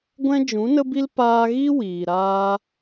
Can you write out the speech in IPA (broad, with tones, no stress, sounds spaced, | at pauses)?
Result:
ɡʷ ɛ̃˦ d͡ʒ ũ˨˦ n ə˦ b i˦ l p aː˧ ɣ i˦ w iː˨ ɾ aː˦